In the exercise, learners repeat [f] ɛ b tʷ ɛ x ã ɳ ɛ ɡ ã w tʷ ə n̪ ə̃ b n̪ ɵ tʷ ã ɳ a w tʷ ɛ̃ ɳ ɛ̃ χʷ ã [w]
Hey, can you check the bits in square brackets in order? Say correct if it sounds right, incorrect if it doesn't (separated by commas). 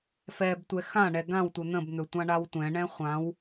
correct, correct